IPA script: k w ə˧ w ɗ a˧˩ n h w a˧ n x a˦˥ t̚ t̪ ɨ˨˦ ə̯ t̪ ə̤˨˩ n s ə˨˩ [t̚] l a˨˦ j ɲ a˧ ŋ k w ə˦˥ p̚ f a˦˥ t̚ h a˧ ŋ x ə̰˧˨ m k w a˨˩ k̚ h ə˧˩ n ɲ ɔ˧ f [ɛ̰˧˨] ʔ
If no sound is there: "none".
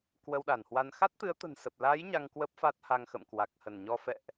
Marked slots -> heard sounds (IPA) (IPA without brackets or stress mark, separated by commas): p̚, ɛ̰˧˨